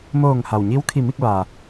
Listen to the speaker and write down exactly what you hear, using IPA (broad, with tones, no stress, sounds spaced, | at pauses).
m oː˧˩ ŋ h a˩ w ɲ i˧˥ w kʰ i˧˩ m i˥˨ k̚ ʋ aː˩